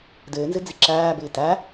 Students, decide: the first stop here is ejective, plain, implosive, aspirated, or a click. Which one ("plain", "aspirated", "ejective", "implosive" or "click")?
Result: plain